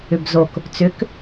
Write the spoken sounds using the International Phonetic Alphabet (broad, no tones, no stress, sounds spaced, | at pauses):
ʏ b z o k | t͡s ʏ k